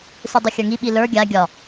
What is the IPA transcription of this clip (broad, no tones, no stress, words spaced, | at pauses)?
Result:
sɨdˤɨxʲə˞ŋi ɓilə˞ ɡʲa ɡʲɒ